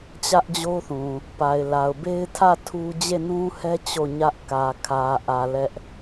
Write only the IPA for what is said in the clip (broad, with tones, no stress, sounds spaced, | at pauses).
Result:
t͡ɕ ä˦ ʔ d͡ʑ o˦ θ ũ˨ | p a˨ ɪ̯ l a˨ ʊ̯ b e˦ ɪ̯ tʰ ä˦˨ tʰ u˦ d͡ʑ e˦˨ n ũ˦ h ɛ˦ t͡ɕ o˦˨ ɲ ä˦ ʔ k ä˨ kʰ ä˨ ʔ ä˨ l ɛ˦ ʔ